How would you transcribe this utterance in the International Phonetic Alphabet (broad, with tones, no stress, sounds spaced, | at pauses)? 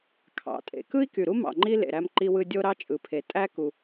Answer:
kʰ ɑ̰˩ tʼ ḛ˩ k ɯ˥ i̯ k y˩ ɾ u˥ m ɑ̰˩ ŋ͡ǃ i˥ l ḛ˩ ɾ æ˥ m ǃ i˥ w ɯ˥ dʲ o˥ ɾ ɑ˥ t͡ʃʼ ɯ˩ pʰ e˩ tʼ æ˥ k u˩